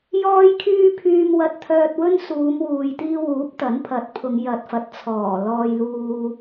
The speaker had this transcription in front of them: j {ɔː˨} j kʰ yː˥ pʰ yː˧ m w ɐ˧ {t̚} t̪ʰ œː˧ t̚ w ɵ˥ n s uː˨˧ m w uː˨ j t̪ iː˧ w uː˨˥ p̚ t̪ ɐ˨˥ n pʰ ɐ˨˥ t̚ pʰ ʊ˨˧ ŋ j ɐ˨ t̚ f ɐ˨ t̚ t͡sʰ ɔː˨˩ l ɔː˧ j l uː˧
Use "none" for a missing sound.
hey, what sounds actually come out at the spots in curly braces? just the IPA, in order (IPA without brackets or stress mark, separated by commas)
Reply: ɔː˥, t̚